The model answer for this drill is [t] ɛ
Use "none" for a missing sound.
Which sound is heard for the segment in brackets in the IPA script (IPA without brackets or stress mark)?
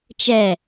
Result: t͡ʃ